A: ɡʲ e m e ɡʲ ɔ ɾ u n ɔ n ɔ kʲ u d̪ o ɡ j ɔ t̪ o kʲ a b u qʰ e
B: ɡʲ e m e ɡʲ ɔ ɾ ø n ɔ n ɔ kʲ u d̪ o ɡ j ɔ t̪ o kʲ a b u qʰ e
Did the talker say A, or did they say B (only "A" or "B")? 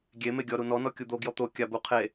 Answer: A